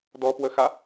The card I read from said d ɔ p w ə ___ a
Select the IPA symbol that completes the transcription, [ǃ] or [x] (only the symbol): x